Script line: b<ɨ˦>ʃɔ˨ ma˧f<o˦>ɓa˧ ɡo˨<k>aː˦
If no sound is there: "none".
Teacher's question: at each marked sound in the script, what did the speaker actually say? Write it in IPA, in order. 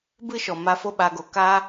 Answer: ɨ˦, o˦, k

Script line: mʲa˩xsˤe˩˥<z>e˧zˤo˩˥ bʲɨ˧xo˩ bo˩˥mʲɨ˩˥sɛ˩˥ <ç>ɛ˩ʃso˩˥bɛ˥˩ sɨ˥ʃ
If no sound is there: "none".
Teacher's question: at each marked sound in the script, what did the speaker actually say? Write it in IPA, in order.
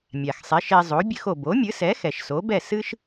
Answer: ʃ, x

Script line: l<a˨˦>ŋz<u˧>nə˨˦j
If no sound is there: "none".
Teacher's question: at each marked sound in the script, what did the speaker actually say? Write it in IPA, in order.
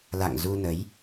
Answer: a̰˧˨, u˧

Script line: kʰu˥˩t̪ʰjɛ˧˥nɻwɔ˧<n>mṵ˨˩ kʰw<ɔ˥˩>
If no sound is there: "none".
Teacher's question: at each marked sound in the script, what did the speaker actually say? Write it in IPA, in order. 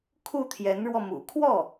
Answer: none, ɔ˥˩

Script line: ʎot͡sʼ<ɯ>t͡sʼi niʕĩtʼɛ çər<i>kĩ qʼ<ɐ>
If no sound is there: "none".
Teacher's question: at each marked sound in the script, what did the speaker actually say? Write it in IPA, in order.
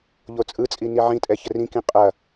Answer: ɯ, ĩ, ɐ

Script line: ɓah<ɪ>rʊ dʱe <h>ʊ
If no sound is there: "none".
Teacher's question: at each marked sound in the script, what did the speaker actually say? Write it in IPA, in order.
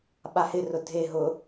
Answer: ɪ, ɦ

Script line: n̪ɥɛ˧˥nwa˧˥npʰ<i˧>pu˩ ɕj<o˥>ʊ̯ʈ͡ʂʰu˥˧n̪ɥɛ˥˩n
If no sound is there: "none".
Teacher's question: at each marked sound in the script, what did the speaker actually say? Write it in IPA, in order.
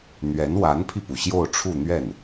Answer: i˧, o˥˧

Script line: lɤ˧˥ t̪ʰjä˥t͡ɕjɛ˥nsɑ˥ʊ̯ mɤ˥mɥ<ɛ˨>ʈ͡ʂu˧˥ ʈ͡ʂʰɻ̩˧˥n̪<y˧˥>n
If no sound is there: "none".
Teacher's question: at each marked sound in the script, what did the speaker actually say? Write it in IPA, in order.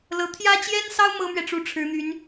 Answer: ɛ˨, y˧˥

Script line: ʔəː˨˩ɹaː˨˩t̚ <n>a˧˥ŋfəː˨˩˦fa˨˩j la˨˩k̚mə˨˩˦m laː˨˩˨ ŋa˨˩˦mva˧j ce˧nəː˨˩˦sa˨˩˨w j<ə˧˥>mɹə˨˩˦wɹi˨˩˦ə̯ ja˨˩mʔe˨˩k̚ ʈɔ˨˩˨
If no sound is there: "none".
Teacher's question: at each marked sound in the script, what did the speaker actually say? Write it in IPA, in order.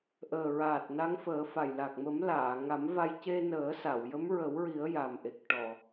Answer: n, ə˧˥

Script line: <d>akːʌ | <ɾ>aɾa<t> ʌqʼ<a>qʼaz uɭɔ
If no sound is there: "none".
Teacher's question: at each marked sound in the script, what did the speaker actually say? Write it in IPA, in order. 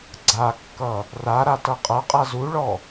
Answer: ɡ͡ǀ, r, t, ʌ

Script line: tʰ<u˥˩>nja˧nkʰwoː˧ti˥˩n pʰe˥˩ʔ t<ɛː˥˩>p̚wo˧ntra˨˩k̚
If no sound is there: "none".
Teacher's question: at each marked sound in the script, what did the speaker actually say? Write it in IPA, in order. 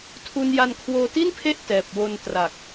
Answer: u˧, ɛː˨˩

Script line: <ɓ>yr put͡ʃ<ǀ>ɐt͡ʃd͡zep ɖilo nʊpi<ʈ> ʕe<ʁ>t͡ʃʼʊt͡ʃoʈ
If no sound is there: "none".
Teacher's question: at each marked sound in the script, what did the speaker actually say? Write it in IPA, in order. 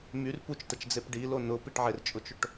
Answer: m, t, ʈ, r

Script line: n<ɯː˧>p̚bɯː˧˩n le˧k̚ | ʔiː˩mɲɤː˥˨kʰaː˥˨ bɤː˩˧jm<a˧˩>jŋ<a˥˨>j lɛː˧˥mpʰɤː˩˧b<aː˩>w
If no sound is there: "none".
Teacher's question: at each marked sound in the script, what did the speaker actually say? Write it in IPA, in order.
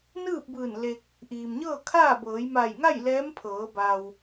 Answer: ɯː˥˨, a˧˩, a˥˨, aː˩

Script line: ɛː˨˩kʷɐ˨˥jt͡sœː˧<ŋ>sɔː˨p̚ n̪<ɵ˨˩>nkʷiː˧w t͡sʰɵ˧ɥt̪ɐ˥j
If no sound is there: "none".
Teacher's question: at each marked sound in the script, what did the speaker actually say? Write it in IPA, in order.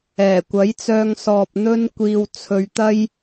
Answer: ŋ, ɵ˥

